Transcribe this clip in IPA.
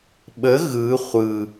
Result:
ɓ ə ɣ ɯ χʷ ɯ

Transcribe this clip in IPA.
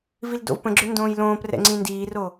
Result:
v i l d o̰ v p ə̃ ɡ͡ǁ ʏ n d õː j l õː p r ɛ̰ ŋ͡ǀ ĩ n d iː r o

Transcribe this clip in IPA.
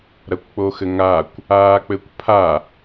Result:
ɾ ɐ kʷ k͡p o x ɘ ŋ a kʷ | aː k͡p ɘ kʷ pʰ a

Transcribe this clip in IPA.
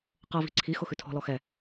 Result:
q ɤ v i̤ ǀʰ i x ʊ x ʉ tʰ ɔ̤ l ɔ x ɛ

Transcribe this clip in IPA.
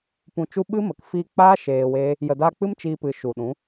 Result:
p ũ˨ t͡ʃ u˧ ɓ ɨ˦ m ə˨ k f iː˧ k͡p aː˦ ʃ eː˧ w eː˦ | j ə˨ d aː˧ k͡p ɨ˦ m t͡ʃ iː˧ p ɨ˨ ʃ u˨ ɗ ũ˨˦

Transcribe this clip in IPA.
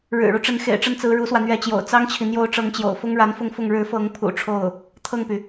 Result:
ɻ ɻ̩˨˩ ɻ u˦ ʈ͡ʂ ə˧˥ n x ḛ˨˩ ɪ̯ ʈ͡ʂ ə˥˩ n t͡s ɹ̩˧˥ ɻ u˧˥ s w ä˧ n̪ ɥ ɛ˧˥ t͡ɕ j o̰˨˩ ʊ̯ t͡s ɑ˥ ŋ t͡ɕʰ i˨ n̪ j o˧˥ ʊ̯ ʈ͡ʂ ɤ˧˥ ŋ t͡ɕ j o̰˨˩ ʊ̯ f ʊ˥ ŋ ɻ a˧˥ n f ʊ˥˧ ŋ f ʊ˥˩ ŋ ɻ ɻ̩˧˥ f ɤ˧˥ ŋ pʰ ṵ˨˩ ʈ͡ʂʰ o˥˩ ʊ̯ | t̪ʰ ɤ˥˩ ŋ p y˩

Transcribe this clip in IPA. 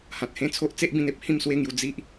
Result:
h ã˨ t̚ h ẽ˦ t͡sʰ o˦ ʔ t͡s e˦ ʔ b ĩ˧ n e˦ p̚ h ĩ˥˧ m s w e˥˧ ŋ j u˧ d͡z i˦ ʔ

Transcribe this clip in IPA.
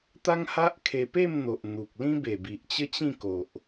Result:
t̪ a˦ ŋ h a˦ ʔ kʰ e˧ p e˥˧ m n̪ o˨ ʔ n̪ u˨ k̚ l ĩ˦ b e˨˩ b i˨ ʔ t͡ɕ ə˦ t͡ɕ ĩ˥˧ k o˨ ʔ

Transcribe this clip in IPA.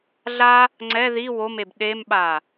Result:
ɮ a | ŋ͡ǀ ɛ ð i w o m e b ɗ e m ɓ a

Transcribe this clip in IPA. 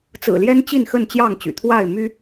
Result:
t͡s ɹ̩˨˩ l j ɛ˦ n t͡ɕ i˥˨ n x ə˥˨ n t͡ɕ j ɑ˥˨ ŋ t͡ɕ y̰˨˩ t̪ʰ w a˥˨ ɪ̯ m y˦

